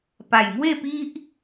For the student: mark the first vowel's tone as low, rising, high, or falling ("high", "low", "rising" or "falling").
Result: low